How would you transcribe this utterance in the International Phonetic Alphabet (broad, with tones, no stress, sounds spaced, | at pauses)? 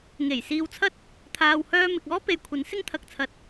ŋ e˨˩ j s iː˧ w t͡sʰ ɐ˥ t̚ | t̪ʰ aː˨ w h œː˧ m ɪ˨ k̚ ɔː˥ p e˨ j kʷʰ ɐ˨˥ n s ɪ˥ ŋ t̪ʰ ɐ˨ k̚ t͡sʰ ɐ˨˥ t̚